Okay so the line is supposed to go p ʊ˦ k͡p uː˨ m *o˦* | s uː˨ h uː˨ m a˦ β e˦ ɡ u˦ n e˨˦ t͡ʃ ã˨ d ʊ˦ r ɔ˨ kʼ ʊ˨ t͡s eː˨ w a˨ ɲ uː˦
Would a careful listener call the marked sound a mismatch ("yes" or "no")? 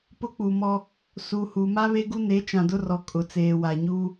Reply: yes